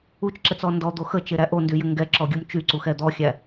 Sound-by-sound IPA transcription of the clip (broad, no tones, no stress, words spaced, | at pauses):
ut͡ʃǁɛt͡sɔ ndɔd̪o xət͡ʃeɾæ ʔondyjɘ ŋɡɛǁɔɡʲum t͡ʃyǀuxɛ d̪ɔxʲæ